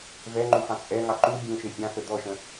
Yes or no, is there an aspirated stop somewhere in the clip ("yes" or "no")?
no